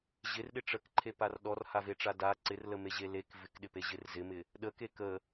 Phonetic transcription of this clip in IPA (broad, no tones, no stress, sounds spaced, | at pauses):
ʑ ɪ r ɗ ɪ ʈ͡ʂ ə k ǃʰ e p a r ɗ ɔ r h a v e ʈ͡ʂ a d a ǀ ɪ r l ə m e ʑ e l e k v ɪ k ɗ ɪ p e ʑ ɪ r z ɪ m ɪ | ɗ ə k e k ə